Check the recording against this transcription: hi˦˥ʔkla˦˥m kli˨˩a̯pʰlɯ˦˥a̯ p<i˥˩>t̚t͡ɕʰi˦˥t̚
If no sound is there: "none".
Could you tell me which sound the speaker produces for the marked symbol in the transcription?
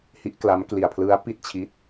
i˥˩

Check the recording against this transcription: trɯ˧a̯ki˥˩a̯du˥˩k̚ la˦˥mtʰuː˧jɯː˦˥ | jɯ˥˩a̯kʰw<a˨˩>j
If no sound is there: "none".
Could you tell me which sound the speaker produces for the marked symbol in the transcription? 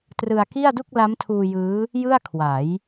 a˩˦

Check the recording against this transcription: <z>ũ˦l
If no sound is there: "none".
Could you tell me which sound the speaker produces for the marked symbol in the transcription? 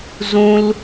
z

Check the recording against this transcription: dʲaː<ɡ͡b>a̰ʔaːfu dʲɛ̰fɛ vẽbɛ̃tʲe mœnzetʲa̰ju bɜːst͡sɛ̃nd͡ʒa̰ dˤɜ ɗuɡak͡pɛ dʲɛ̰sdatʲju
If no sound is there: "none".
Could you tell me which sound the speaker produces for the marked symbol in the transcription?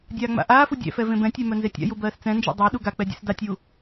ŋ͡m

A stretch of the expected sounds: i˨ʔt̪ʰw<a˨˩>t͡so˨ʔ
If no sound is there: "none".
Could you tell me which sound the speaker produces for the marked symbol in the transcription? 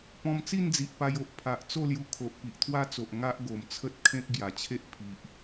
a˦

